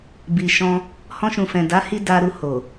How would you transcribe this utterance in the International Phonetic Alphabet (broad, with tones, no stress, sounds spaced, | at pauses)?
b i˨ ʃ ɔ̃˧ | h ɔ̃˦ ʃ ũ˧ f ɛ̃˨ d a˨˦ h i˧ d a˧ ɾ u˧ h o˨